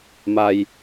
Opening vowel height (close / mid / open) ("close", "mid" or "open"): open